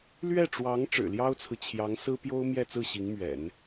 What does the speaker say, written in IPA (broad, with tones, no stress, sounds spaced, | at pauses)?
l ɥ ɛ˥˩ ʈ͡ʂ w ɑ˧˥ ŋ ʈ͡ʂ ɻ̩˨˩ l j ɑ˥ ʊ̯ t͡sʰ ɹ̩˨ t͡ɕʰ j ɑ˧˥ ŋ s ɹ̩˥ p j o˥ ʊ̯ m j ɛ˥˧ t͡s ɹ̩˥˩ ɕ i˧˥ ŋ m ɥ ɛ̰˨˩˦ n